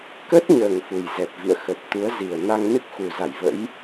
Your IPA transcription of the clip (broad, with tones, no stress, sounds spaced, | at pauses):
k ə˦˥ t̚ ɲ əː˨˩ ŋ f u˨˩ j z ɛ˨˩ p̚ v ḭ˧˨ ə̯ x ə˨˩ t̚ t̪ u˨˦ ə̯ z i˨˩ ə̯ n a˧ ŋ n ɨ˦˥ k̚ x u˨˩ z a˧˩ j v ə̰˧˥ j